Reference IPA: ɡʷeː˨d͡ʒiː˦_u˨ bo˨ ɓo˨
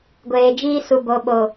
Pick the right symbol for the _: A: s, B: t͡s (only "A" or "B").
A